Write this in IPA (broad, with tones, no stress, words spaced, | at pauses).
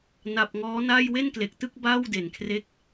na˨˩p̚ŋɔː˦˥na˥˩j we˥˩nkle˨˩k̚tɯ˥˩k̚ baː˥˩wde˨˩nkʰre˦˥k̚